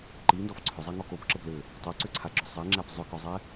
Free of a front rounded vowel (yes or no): no